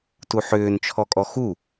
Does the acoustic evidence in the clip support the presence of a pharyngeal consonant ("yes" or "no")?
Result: yes